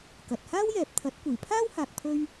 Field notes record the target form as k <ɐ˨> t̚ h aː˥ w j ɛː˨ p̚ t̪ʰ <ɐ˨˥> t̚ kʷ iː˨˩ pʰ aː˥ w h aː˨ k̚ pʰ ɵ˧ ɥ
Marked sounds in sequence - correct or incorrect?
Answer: correct, correct

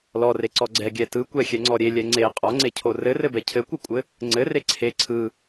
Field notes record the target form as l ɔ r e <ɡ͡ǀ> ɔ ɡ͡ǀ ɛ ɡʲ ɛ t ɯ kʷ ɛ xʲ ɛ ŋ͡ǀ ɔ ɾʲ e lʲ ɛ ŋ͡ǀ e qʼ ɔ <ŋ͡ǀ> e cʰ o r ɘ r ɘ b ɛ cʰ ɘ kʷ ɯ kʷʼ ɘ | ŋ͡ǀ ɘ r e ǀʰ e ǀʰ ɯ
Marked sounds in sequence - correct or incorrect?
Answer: incorrect: ǀ, correct

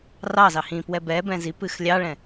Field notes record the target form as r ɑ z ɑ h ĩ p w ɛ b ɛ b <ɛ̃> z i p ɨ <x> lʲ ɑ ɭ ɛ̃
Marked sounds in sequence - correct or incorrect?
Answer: correct, correct

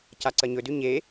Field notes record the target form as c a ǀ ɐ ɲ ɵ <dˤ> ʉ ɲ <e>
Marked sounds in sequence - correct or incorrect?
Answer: incorrect: d, correct

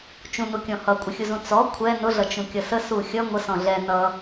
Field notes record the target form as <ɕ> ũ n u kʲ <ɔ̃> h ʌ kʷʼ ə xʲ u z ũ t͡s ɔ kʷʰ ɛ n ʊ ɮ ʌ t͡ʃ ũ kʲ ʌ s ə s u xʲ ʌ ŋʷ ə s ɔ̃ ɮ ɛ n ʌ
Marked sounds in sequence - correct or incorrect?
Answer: incorrect: t͡ʃ, correct

